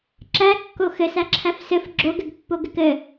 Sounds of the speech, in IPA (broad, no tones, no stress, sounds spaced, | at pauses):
ǁ æ kː o x ɘ s æ ǁʰ æ f s ɘ f ɡ͡ǁ o ɡ ɘ ɡ pː o ɡ ɘ k ɘ